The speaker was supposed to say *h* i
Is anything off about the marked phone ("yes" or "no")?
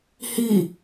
no